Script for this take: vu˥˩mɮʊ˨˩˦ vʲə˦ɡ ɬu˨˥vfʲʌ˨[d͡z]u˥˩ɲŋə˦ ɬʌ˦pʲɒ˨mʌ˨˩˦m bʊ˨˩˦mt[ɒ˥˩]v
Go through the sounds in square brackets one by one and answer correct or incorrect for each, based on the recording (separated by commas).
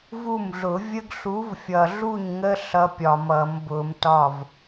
incorrect, correct